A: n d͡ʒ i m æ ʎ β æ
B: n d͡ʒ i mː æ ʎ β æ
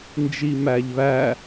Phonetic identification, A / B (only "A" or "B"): A